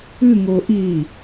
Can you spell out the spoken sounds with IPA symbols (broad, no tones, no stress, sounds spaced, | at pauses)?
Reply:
ɨ ŋ o ʔ i